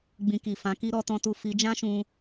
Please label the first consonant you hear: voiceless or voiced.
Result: voiced